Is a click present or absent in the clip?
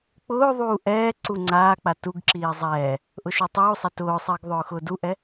present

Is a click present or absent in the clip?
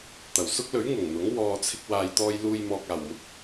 absent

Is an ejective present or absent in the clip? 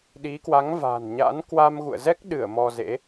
absent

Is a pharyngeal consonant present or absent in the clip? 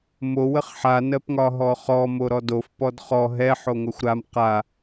present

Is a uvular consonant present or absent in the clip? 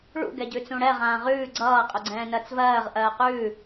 present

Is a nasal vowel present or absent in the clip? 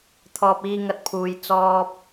absent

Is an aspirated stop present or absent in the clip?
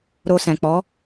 absent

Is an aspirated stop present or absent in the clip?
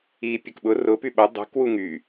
absent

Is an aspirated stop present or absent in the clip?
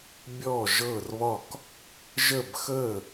absent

